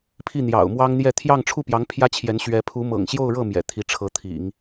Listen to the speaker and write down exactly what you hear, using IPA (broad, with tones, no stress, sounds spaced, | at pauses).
pʰ i˥˩ n̪ j ɑ̰˨˩ ʊ̯ m w ɑ˥ ŋ n̪ j ɛ˥˧ t̪ʰ j ɑ˥˧ ŋ ʈ͡ʂʰ u˥˩ p j ɑ˧˥ ŋ pʰ j ä˥ t͡ɕʰ j ɛ˧˥ n ɕ ɥ ɛ˧˥ pʰ u˧˥ m ɤ̰˨˩ ŋ ɕ j o˥˧ ʊ̯ ɻ ɤ˥˩ m j ɛ̰˨˩ t̪ʰ i˧˥ ʈ͡ʂʰ ɤ˧˥ t̪ʰ ḭ˨˩˦ ŋ